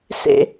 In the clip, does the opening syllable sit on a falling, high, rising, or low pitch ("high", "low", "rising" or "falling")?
low